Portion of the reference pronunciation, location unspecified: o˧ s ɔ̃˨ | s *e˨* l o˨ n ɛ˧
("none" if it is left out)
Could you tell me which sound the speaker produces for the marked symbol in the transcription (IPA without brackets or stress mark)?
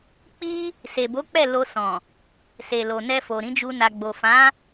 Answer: e˨